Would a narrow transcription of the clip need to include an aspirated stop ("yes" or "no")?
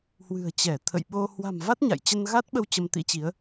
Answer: yes